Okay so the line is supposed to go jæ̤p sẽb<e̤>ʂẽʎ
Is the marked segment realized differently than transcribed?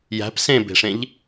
no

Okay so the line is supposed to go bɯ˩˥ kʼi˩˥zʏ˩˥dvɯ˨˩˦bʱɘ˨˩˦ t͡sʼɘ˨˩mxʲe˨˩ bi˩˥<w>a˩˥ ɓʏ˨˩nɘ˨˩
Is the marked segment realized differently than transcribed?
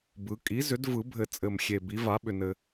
yes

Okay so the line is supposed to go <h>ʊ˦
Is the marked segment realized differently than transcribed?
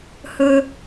no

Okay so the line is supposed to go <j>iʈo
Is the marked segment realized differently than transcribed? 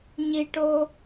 yes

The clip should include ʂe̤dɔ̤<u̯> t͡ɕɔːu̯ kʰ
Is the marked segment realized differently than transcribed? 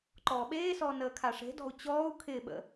no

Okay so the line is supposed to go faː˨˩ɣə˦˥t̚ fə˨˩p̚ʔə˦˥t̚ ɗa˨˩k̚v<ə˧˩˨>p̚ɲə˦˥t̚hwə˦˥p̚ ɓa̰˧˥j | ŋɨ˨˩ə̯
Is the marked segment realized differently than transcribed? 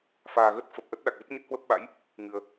yes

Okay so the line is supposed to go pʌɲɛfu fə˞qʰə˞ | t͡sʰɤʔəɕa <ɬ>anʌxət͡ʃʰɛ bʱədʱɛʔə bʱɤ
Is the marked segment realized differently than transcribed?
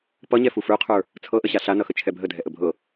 no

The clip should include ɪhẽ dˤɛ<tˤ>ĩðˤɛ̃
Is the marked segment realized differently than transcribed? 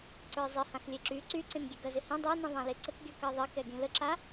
yes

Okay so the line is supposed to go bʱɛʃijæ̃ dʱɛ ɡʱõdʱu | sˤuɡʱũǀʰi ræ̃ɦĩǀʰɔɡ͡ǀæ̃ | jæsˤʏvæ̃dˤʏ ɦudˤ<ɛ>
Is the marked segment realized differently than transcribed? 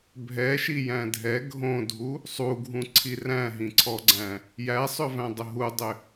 yes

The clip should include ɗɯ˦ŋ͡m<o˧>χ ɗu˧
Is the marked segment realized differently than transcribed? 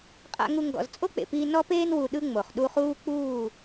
yes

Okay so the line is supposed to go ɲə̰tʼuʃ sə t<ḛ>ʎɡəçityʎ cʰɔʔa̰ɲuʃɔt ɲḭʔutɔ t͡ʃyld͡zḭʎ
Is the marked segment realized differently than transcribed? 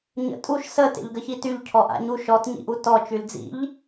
no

